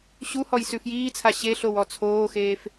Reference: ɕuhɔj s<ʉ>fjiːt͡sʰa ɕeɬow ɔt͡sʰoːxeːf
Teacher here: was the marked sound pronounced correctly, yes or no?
yes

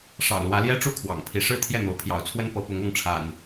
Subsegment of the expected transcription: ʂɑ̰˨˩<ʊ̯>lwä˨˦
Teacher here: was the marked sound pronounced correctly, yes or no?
yes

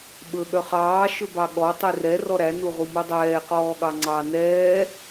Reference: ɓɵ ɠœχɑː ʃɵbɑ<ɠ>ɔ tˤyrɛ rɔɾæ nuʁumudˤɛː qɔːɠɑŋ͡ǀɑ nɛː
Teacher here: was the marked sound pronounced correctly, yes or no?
yes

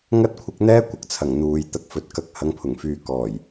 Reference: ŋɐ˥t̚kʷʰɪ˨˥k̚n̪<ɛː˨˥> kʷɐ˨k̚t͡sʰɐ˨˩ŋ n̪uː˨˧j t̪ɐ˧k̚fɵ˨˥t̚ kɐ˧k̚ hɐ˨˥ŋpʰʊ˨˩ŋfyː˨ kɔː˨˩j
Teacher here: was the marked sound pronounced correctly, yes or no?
no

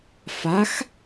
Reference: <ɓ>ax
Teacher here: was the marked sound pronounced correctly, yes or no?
no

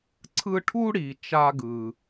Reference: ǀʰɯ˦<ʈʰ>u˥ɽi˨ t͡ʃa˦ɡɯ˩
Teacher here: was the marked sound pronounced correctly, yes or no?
yes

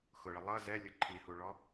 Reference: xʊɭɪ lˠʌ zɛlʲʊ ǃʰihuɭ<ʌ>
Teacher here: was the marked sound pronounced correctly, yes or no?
no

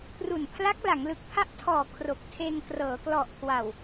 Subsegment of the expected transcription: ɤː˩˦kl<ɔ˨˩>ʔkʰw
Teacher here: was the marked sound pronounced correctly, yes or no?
yes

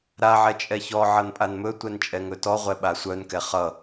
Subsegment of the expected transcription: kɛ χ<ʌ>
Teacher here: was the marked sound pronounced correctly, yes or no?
yes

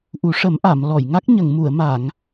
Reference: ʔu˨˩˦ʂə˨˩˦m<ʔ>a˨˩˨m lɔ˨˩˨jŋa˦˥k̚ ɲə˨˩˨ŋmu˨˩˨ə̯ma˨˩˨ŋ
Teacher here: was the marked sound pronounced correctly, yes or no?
yes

